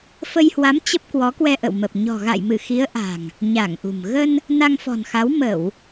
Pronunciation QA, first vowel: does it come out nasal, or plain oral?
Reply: oral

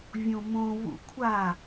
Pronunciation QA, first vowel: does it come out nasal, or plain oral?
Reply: nasal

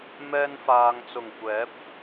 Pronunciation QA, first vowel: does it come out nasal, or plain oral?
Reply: oral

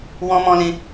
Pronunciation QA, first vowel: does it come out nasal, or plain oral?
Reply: nasal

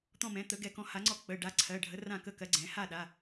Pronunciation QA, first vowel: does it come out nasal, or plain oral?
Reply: nasal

